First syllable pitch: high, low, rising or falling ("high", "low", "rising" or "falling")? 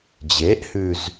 rising